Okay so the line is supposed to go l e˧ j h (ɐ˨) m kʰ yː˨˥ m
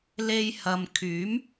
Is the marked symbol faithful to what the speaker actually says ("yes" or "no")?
yes